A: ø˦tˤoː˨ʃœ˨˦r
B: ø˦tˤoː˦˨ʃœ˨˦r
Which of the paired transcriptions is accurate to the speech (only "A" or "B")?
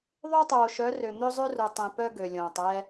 A